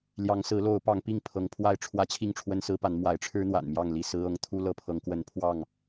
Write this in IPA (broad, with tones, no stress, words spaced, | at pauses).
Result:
ljɑ˨˦ŋsɹ̩˨˦lo˨˦ʊ̯ pɑ˨˦ŋpi˥˨ŋ pʰɤ˨˦ŋpʰwa˥˨ɪ̯ʈ͡ʂʰwä˦ t͡ɕʰi˥˨ŋʈ͡ʂʰwə˦nsɹ̩˦pa˨˦n mwa˨˦ɪ̯ʈ͡ʂʰɻ̩˦n̪wa̰˨˩n mjɑ˥˨ŋli˥˨sɹ̩˦ɤ˦ŋ t̪ʰu˦lɤ˦pʰɤ˨˦ŋ kwə˨˦npʰwɑ˥˨ŋ